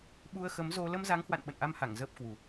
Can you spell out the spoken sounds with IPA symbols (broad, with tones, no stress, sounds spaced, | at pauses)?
ɓ u˧ ə̯ x ə˨˦ m z o˧ l ə˧ m z a˨˦ ŋ h w a̰˧˨ n ɓ ə̰˧˨ n ʔ a˧ m h a˧˩ ŋ z əː˦˥ p̚ k w u˨˩